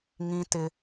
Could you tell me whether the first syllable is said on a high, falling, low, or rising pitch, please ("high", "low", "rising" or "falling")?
high